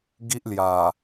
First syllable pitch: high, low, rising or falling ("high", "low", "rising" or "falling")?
high